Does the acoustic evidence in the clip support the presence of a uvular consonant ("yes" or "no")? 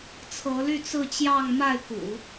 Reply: no